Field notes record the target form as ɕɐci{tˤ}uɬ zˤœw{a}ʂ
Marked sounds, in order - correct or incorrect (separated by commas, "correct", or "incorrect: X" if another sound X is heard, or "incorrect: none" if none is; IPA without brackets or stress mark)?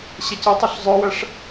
correct, incorrect: ɐ